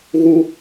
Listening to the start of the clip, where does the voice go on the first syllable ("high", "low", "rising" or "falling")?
high